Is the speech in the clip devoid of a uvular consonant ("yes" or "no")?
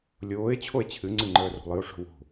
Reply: yes